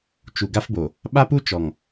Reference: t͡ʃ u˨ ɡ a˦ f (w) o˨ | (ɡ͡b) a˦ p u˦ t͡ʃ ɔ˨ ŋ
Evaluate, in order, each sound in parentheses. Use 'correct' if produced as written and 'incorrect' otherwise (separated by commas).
incorrect, incorrect